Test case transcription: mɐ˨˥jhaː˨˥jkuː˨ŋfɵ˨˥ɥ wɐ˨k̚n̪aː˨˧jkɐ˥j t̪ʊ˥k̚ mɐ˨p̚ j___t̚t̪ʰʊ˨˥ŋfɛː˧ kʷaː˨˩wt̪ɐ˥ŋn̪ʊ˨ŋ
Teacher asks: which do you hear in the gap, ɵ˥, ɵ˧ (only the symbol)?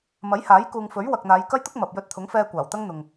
ɵ˧